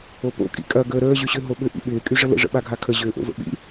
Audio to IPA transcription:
o p o̰ kʼ ḭ kʼ ɐ ɡ əː ɾ əː ʑ y ɕ ʏ ɦ o ɓ ʏ ʔ ḭ ɓ ɪː kʼ y ʐ ə l ə̰ ʐ ə̰ ɓ a ɡʱ a kʰ ə ʑ ʏː ʔ o̰ v ə̰ ɓ ḭ

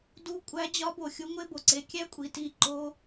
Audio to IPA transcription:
d u˧ kʷʼ æ˧ d͡ʑ ɒ˧ b o˨ xʲ u˧ ŋʷ e˧ b o˨ ǀ e˧ kʲ æ˦ kʷʼ i˧ t i˦˨ ǃ o˦

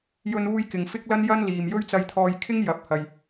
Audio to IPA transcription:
j ɵ˧ n uː˧ j k ɪ˨ ŋ f ɪ˥ k̚ l ɐ˥ n j ɐ˥ n l iː˨ m j ɵ˥ ɥ t͡s ɐ˧ j t̪ʰ ɔː˧ j kʰ ɪ˥ ŋ j ɐ˨˥ p̚ h ɐ˨ j

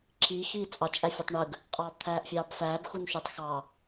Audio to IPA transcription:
ǁʰ iː x iː t͡sʼ ɑ t͡ʃʼ æ fʲ o tˤ ɳ ɯ ɡ | qʼ ɑː b t̪ʰ æː ʔ fʲ ɑː b f æː b x u n ʃ u tˤ x ɑː

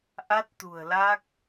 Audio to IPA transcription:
ʔ a˦˥ t̚ t̪ ṳ˨˩ ə̯ l a˦˥ k̚

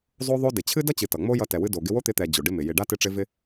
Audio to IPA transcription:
zˤ o˦ ðˤ o˦ d ɪ˨ t͡ɕʰ ɨ˦ d ʌ˦ t͡ɕ ɨ˨ t ʌ˨ ŋ͡m o˦ j ʌ˧ t ɛ˨ w ɨ˧ d o˨ ɡ ɪ˧ w o˦ t̪ ɪ˧ t̪ ɛ˨ d͡ʑ o˨ ɖ ɪ˦ m ɪ˨ j ɪ˨ ɖ a˦ t ɪ˧ ʈ͡ʂ ɪ˧ v ɪ˦

